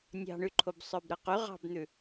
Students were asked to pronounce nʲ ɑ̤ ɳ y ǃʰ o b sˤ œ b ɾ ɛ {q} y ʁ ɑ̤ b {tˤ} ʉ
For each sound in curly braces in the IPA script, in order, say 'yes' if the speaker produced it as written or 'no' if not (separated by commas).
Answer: yes, no